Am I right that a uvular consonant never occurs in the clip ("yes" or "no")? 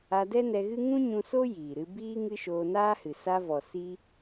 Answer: yes